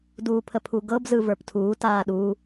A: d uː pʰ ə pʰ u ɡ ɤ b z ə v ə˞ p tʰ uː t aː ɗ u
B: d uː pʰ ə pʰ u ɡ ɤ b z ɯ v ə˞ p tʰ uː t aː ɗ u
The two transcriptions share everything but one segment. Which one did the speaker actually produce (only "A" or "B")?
B